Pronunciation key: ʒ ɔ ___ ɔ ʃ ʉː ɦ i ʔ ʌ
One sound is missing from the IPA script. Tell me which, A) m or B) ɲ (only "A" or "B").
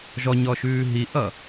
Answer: B